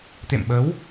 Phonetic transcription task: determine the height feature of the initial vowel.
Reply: mid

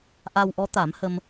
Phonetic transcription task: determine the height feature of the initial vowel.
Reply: low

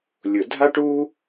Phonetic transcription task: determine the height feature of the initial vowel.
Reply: high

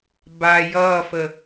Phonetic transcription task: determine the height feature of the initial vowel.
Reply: low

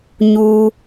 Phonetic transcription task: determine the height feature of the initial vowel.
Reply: high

